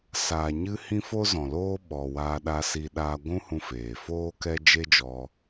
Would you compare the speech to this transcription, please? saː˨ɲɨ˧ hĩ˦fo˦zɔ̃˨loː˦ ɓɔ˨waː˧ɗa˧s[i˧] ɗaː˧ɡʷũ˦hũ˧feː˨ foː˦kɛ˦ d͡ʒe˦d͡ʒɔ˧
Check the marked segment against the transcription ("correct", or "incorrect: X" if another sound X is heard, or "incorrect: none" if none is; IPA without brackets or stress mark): correct